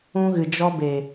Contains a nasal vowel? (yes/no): yes